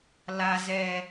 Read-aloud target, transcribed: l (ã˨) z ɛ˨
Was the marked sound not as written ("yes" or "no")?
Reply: yes